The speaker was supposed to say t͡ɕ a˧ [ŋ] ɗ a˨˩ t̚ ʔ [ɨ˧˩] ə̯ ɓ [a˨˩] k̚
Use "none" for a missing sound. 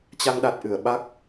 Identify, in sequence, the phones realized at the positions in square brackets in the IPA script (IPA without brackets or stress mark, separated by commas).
ŋ, ɨ˧˩, a˦˥